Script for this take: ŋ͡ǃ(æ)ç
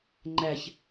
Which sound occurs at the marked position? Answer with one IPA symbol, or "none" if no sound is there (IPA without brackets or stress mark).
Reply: æ